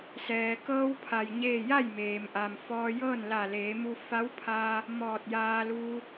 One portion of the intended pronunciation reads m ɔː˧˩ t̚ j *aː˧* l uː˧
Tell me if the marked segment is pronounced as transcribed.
yes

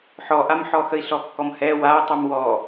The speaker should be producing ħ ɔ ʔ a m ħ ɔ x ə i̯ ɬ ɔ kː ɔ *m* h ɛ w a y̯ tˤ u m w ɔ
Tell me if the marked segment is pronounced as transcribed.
yes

